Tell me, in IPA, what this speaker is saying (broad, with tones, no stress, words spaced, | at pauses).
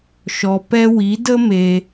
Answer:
ʃɔ˨pɛ˧ wi˨˦də˦ me˧